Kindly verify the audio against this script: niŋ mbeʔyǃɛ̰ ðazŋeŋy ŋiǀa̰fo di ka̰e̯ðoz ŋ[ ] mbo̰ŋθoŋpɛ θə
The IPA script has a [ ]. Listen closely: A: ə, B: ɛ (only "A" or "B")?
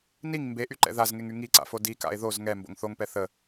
B